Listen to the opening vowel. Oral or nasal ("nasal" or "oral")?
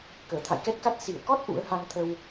oral